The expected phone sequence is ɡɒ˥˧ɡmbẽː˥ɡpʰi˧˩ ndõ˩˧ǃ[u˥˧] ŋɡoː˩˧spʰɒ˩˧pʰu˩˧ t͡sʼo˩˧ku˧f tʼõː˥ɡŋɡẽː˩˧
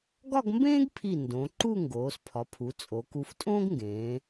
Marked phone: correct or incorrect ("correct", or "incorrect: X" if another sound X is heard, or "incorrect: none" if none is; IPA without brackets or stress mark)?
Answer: correct